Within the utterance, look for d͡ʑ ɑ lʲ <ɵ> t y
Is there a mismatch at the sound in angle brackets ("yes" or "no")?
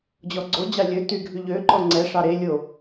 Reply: no